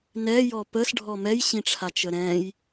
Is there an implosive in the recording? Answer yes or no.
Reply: no